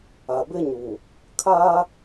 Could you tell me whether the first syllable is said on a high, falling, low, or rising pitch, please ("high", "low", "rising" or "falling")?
low